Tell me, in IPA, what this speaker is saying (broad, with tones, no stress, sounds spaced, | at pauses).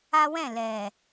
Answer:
a˦ w ɛ̃˦˨ l ɛ˨